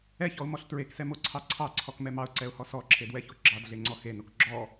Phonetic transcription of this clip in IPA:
ɛçɔʊ̯mɔɬ tɹeksɛmoǀʰɑ ǀʰɑǀʰɔkmɛ mɑʊ̯ǀɛʊ̯hɔ sɔǁʰedwɛço ɡ͡ǁɑdɮeŋ͡ǀɔ xenok ɡ͡ǁɔ

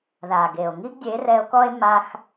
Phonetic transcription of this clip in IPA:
ða˨ɡe˨o̯ ŋi˦ɡdʲe˨˦rɛ˧o̯kɔ˦e̯ ma˦x

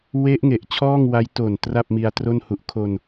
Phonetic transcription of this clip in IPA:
we˦˥ʔŋe˨˩ʔ t͡ɕʰɔː˥˩ŋwa˦˥j to˨˩n tra˥˩p̚mi˧a̯tro˥˩nhu˦˥ʔ kʰo˧n

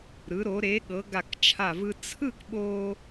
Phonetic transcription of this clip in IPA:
ɾɯ˩˧ɾo˩˧ ɾe˩˧ɠɤ˩˧ ɡa˧˩kt͡ʃʰa˧˩vɯ˧ t͡sʰɯ˥˧kɓo˧

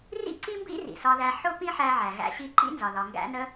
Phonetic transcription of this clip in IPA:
rḭ˥ǀi˥mbḭ˥ rḭ˩sɒ˧ðæ˧ ħʊ˥ pĩ˥ħæ˧ʕæ˩ ɣæ̰˧ɕi˧ ǃḭ˥nzɒ˩ ðɒ˩ŋɡæ̰˧nə˧

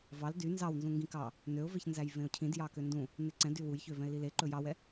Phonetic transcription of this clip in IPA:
vɑl dy nzɑwnzũŋɡĩ kɑ | nøʊ̯veçnzæj vẽʊ̯cʰĩdjɑ køndũ | neǀɛ̃dy wujçø vɛ̃ɪ̯lile ǃɵjɑwɛ

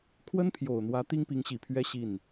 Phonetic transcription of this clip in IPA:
kʰwə˥npʰjo˨˩ʊ̯n̪wä˧˥ t̪i˥ŋpi˧˥ŋɕi˨˩pʰɥɛ˥ ɕi˥˩n

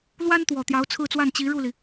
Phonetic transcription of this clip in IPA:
lwa˥nt̪wɔ˨˩ t̪jɑ˧˥ʊ̯t͡sʰɹ̩˥˧t͡swa˥˩n t͡ɕi˧˥ɻu˥˩li˩

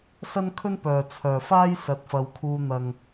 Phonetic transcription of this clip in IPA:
sɐ˥nkʰɵ˥npœː˨ t͡sʰœː˨faː˥j sɐ˧t̚fɐ˧wkʰuː˧ n̪ɐ˨ŋ

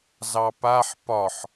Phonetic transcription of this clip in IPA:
zɑpaħ pɒħ

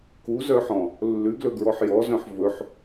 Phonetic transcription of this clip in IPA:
kuzœħɔ̃ | lːʉɡlɵɡɹɔħ jɔzœ̃ħ vɵħ

